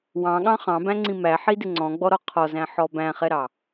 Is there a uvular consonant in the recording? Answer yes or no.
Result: yes